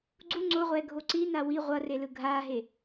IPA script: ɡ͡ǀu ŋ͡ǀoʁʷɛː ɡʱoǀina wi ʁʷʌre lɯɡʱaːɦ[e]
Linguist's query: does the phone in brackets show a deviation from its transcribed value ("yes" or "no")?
no